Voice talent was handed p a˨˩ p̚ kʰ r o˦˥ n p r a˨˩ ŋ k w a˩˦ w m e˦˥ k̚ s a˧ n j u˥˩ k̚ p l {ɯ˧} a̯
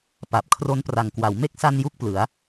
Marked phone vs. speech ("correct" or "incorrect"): incorrect